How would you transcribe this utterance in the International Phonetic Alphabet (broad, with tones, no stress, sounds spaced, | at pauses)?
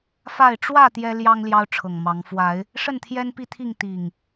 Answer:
f a˥˨ ɪ̯ ʈ͡ʂ w ä˥˨ t̪ j ɛ˦ l j ɑ˦ ŋ l j ɑ˦ ʊ̯ ʈ͡ʂʰ ɤ˨˩ ŋ m ɑ˨˦ ŋ f w a˨˦ ɪ̯ | ʂ ə˥˨ n t̪ʰ j ɛ˦ n p i˥˨ t̪ʰ i˥˨ ŋ t̪ i˨˩ ŋ